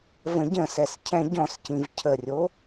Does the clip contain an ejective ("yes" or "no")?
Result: no